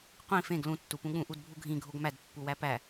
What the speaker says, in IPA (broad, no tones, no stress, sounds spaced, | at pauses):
qʷ ĩ f ẽ ɡ l ũ tː u p ũ ɠ ũ ʔ u d bʱ u ɡʱ ĩ ɡʱ o ɡ m æ d pː u w æ p æ